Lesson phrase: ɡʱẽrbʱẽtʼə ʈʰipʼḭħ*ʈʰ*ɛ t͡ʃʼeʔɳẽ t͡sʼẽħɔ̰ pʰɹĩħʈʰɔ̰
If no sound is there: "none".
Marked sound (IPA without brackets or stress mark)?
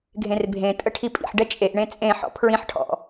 ɖ